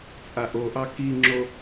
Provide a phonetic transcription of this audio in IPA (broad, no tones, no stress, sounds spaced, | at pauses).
t͡sʼ a ʔ o ʔ ɑ k i ŋ͡ǁ o